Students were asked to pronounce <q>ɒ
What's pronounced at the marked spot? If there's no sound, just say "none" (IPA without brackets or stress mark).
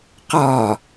q